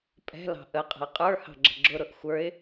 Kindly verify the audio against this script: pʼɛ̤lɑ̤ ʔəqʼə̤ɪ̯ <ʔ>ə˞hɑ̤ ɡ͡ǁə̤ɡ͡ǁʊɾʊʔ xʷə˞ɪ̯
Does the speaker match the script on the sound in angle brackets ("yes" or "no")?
no